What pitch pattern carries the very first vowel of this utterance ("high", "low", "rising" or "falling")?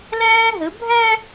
high